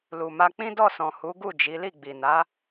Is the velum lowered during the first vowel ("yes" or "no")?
no